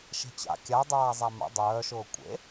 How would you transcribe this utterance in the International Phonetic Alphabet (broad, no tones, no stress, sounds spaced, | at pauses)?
ʃ e̤ t͡ɕ a̰ kʲ a dˤ aː zˤ a m a̰ dˤ œː ʃ ʊː kʷʼ ḛ